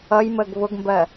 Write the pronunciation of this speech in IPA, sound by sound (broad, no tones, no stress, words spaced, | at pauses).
ʌjməːɡ βʊɡmbɜ